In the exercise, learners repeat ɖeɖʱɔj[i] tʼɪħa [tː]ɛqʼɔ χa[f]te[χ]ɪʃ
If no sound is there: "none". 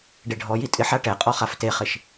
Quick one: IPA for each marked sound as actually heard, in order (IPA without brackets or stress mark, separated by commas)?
i, ʈ, f, χ